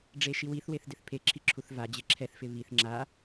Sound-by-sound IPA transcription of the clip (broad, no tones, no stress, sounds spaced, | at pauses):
ɖ͡ʐ e ʃ i w i θ w e θ d ɪ θ pʰ e ǁʰ i ǁʰ u θ v a d͡ʑ e ǁʰ ɛ θ f ɪ β i θ ŋ͡ǁ a